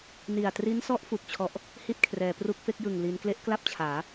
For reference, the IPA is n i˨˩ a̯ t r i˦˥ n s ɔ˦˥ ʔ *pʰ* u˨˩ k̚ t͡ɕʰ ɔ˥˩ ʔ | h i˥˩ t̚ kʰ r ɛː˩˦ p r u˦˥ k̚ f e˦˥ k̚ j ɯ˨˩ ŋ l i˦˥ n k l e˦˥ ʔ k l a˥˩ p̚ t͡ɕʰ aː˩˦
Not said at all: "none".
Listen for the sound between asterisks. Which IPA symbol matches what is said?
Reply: f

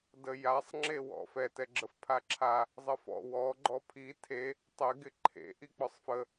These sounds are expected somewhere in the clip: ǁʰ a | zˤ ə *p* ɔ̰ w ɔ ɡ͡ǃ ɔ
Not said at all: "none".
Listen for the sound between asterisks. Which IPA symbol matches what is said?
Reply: f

